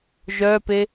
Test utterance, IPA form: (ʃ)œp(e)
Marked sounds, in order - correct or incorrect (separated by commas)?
incorrect, correct